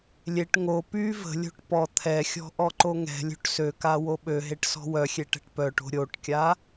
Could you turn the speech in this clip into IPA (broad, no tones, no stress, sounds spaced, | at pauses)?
lʲ e ʈ ŋ o p y v ə̤ lʲ o̤ ʈ p ɔ t̪ʰ ɛ xʲ ɔ̤ ʔ ɔ ǃ o ŋ ɛ̤ lʲ o̤ ʈ s ø k a w o ɓ ø ɦ e ʈ s ɔ̤ w œ xʲ e ʈ ɛ̤ ʈ p œ ʈ o̤ ɾʲ o ʈ kʲ a